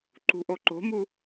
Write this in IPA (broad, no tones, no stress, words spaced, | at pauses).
ǃṳʔoǃo̤mu